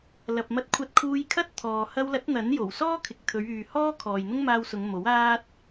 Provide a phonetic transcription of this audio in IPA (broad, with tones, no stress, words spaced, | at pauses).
lɐ˨p̚ mɐ˧t̚kʷʰɐ˧t̚kʰuː˧j kʰɐ˥t̚t̪ʰɔː˨ hɐ˧wlɐ˨˥t̚ n̪ɐ˨˥njo˨˩wsɔː˥ kʰɪ˨k̚t̪ʰɵ˨˧ɥ yː˨hɔː˥ kʰɔː˨jn̪ʊ˥ŋmaː˧wsʊ˨˧ŋ mo˨˥w aː˥t̚